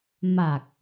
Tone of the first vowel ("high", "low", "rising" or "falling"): low